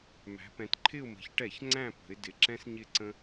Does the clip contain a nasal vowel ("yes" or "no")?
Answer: yes